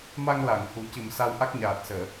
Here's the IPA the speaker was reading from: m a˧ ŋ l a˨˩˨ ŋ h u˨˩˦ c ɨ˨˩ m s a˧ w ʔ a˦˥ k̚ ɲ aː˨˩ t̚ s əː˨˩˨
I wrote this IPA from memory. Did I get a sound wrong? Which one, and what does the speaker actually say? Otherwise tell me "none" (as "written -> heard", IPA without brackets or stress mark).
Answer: none